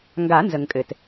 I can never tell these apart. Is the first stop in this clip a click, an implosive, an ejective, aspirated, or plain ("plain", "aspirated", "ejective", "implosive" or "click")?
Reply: plain